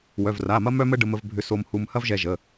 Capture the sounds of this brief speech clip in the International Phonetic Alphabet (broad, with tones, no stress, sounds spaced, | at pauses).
w œ˩˧˩ v r a˩˧˩ m ɐ˥ m œ˥ m ə˥ ɖ ə˧ m ə˧ v bʱ ʏ˧ s o˧ m h u˧ m h ɐ˥ v ʒ ɛ˧ ʒ ə˩˧˩